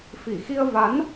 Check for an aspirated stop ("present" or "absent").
absent